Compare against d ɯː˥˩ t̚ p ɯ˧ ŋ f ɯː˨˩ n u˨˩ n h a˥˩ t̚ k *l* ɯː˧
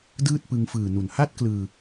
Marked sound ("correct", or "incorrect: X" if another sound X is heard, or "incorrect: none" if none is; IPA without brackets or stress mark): correct